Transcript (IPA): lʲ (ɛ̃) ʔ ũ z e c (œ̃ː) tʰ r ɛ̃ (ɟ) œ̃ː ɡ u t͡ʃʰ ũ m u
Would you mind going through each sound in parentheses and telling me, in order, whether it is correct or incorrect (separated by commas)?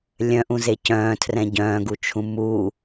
incorrect, correct, correct